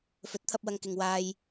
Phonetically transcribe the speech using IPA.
f ɵ˨˥ t̚ t̪ʰ ɐ˧ p̚ w ɐ˨ ŋ k ɪ˨ ŋ w aː˧ j

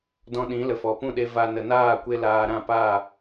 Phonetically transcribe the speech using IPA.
d ɔ̃˧ ɗ ĩ˨˦ l ə˨ f ɔ˨ p ũ˦˨ ɗ e˧ v a˧ n ə˨ n aː˦˨ kʷ e˧ l aː˧ ɾ ã˦˨ p aː˦˨

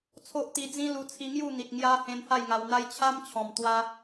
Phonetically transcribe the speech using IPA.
t͡sʰ o˦ ʔ t̪ i˧ d͡z ĩ˦ l u˧ t͡sʰ i˧ ŋ j u˥˧ n̪ i˨ t̚ ŋ j a˧ h ẽ˧ n h a˥˧ j ŋ a˧ w n̪ a˦ j t͡ɕʰ a˦ m t͡ɕʰ ɔ̃˨˩ m t̪ w a˧

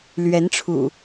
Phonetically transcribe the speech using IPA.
l ɥ ɛ˨˦ n ʈ͡ʂʰ ṵ˨˩

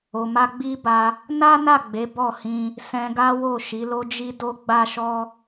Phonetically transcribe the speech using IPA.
o˨ m a˧ ɡ͡b i˦ b a˧ | n a˦ n a˦˨ ɡ͡b e˨˦ b ɔ˦˨ h ĩ˧ | s ɛ̃˧ ɡ a˦ w o˦˨ ʃ i˨˦ l o˦ d͡ʒ i˦ d o˦ ɡ͡b a˦ ʃ ɔ˦

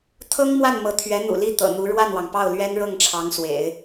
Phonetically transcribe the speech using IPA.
t̪ʰ ɤ˥ ŋ m w a˥˩ n m ɤ˧˥ t̪ʰ ɥ ɛ˧˥ n̪ ṵ˨˩ l i˥˩ t̪ ɤ̰˨˩ n̪ u˧˥ ɻ w a˥˩ n w ɑ˩ ŋ p ɑ˥˩ ʊ̯ l ɥ ɛ˥ n ɻ ɤ˥˩ ŋ ʈ͡ʂʰ ɑ˧˥ ŋ s w ḛ˨˩˦ ɪ̯

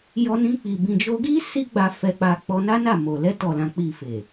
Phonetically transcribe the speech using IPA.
j ɔ˧ n ĩ˧ k͡p i˨ b ĩ˨ d͡ʒ o˧ ɡ i˦ s i˦ ɡ͡b a˧ f ɛ˧ k͡p a˧ k͡p ɔ˧ n a˦ n a˦˨ m o˨ l ɛ˧ t ɔ˨ l ã˨ k͡p i˨ f e˨

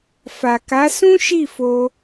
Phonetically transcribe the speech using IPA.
f a˨ k a˨˦ s ũ˦ ʃ i˦˨ f o˧

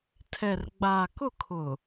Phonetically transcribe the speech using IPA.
tʰ ɛ˨ r ɡ͡b aː˨ k ʊ˦˨ kʰ ʊ˨

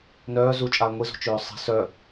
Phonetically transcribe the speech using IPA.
n œː z u t͡ʃʼ aː ŋʷ i z o̤ t͡ʃ øː sˤ i̤ s œ

